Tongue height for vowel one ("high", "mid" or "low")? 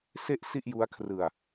mid